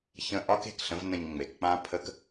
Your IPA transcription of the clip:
ç ə̃˧ ʔ ɒ˦ k e̤˨ k ɬ ə̃˦ v n ə̃˧ ɲ ŋ͡m e˨ k k͡p ã˦ pʰ ə˦ k

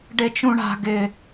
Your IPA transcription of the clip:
ɖ e t͡ʃ ũ ɳ a̤ ɡ ɪ

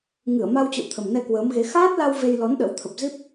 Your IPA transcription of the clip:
ŋ ɨ˧˩ ə̯ m a˧ w t͡ɕ ə̰˧˨ w t̪ʰ ə˨˩ m n ɛ˧ k w əː˨˦ m ɣ e˨˦ x aː˦˥ t̚ l a˧ w v e˧ j l ɔ˨˦ n ɗ ə̰˧˥ w t̪ʰ ə˨˩ p̚ z i˦˥ p̚

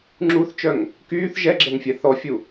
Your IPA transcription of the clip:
ŋ͡ǁ u θ t͡ʃ œ ŋ | k yː θ ʒ ɛ ɡ͡ǁ ɛ ŋ fʲ ɛ θ ɔ fʲ u

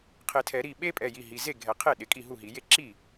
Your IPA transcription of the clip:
qʰ ɪ˨˩˦ tʰ ɛ˨˩˦ ɾ i˥˩ ɓ e˦ pʼ ɛ˩˧˩ j i˩˧˩ ɦ i˩˧˩ z e˥˩ ɡʱ ɛ˨˩˦ qʰ e˥˩ ɗ ɪ˩˧˩ kʼ i˥˩ ɦ u˥˩ ɦ i˨˩˦ j e˥˩ ǁ i˥˩

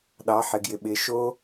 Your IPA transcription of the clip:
ɗ ɑ˨˦ ħ ɪ˨ ɡ j ɪ˨ ɓ ɪ˨˦ ʃ o˦

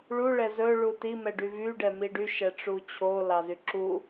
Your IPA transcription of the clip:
ɭ u ɭ ɛ z ɵ ɭ u t i m ɛ ɖ y v y ɖ ɛ m i ɖ y ʃ ɛ ʈ͡ʂ u t͡ɕʰ o l ɑ z y ǁ u

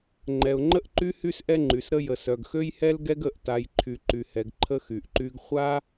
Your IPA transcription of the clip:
ŋ͡ǃ ɛ˧ ʊ̯ ŋ͡ǃ ə˥ ʔ ǃ y˥ h y˥ s ʔ ɛ˥ ŋ͡ǃ y˧ s ɾ ə˥ j ə˧ s œ˧ ɡ x ø˥ j h ɛ˥ l ɡ ɛ˥ ɡ ə˧ ʔ t a˧ j ǃʰ y˧ ǃ y˧ h ɛ˧ ɡ ǃʰ ə˥ x y˧ ʔ ǃ y˥ ɡ χʷ a˥

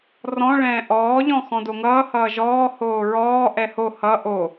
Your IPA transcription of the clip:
r ɔ̃ ɭ ɛ̃ː ʔ ɔː ʎ ɔ̃ x ɔ̃ d o ŋ ʌː h ʌː ʒ ɔː h oː ɹ ɔː ʔ ɛ h o h ʌ ʔ o

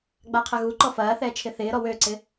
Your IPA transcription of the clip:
ɡ͡b a qʰ ɐ ɣ u ǃ ɔ f ɐː θ ɛː t͡ʃʰ ɪ θ ɪː ɾ ɔ w ø ǀ ɪ

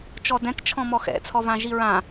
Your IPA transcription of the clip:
t͡ʃ ɔ d ɛ̃ k t͡ʃʰ ɔ̃ m ɔ x ɛ̰ t͡sʰ ɔ v ã ʒ i ɹ ã

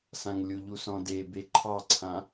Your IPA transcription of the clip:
s ã ŋ lʲ u ʎ u s ɔ̃ d e b e ǃʰ ɑ ǀʰ ã

